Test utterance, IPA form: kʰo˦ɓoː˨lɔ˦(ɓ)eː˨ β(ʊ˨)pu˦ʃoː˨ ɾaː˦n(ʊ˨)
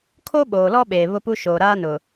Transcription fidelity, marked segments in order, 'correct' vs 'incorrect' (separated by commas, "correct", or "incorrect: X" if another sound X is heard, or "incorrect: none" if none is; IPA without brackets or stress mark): correct, incorrect: ʊ˦, correct